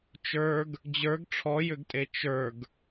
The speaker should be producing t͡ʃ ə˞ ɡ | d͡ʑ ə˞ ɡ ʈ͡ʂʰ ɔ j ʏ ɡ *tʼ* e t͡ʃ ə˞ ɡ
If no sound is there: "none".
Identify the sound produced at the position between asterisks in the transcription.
tʼ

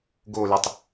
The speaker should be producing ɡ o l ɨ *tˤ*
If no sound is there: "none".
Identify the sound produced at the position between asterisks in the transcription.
tˤ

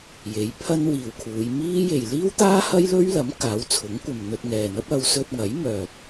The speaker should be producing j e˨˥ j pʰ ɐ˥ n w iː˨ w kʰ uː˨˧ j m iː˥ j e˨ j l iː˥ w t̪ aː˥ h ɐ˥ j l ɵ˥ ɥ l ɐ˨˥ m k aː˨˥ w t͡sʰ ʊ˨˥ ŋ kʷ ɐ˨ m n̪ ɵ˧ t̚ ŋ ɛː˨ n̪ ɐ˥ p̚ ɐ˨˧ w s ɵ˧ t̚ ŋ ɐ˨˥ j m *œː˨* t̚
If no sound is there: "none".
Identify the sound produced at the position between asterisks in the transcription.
œː˨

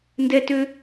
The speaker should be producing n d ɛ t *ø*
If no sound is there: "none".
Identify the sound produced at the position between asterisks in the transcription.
ø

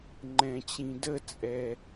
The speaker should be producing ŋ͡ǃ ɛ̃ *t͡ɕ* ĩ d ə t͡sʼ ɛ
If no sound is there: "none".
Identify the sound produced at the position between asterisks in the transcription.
t͡ɕ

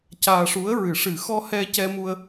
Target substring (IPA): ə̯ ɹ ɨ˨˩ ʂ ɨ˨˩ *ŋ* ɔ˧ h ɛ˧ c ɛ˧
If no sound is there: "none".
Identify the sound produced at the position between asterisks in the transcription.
x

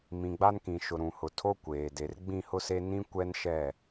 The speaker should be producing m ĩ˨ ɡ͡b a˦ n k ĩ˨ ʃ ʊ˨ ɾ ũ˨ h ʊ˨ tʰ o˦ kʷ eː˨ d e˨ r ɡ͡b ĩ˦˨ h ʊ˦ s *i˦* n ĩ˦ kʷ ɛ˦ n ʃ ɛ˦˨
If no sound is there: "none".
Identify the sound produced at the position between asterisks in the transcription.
e˦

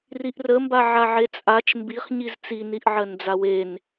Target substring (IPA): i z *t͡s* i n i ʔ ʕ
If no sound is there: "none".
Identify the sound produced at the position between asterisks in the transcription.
t͡s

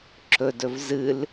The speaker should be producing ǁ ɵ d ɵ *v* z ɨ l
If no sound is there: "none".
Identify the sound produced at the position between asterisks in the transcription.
v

